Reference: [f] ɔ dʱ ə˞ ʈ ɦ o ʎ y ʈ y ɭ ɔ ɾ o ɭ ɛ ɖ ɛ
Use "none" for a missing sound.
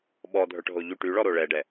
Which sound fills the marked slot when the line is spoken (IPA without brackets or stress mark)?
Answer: ɓ